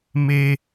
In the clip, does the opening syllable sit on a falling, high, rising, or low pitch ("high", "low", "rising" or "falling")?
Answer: high